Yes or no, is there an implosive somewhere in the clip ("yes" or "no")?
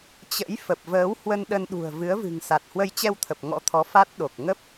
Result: yes